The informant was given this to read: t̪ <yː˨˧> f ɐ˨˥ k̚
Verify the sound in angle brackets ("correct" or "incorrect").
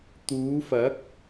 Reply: incorrect